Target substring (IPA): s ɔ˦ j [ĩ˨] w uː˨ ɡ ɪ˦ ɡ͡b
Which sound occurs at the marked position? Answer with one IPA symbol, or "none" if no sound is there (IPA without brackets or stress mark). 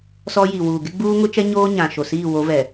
i˨